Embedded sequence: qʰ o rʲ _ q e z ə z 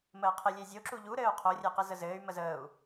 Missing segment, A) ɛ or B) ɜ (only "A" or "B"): A